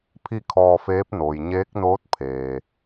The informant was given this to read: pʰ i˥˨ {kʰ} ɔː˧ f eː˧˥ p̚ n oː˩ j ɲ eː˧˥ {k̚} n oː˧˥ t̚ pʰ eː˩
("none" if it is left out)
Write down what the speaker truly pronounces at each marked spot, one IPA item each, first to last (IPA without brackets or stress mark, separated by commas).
kʰ, k̚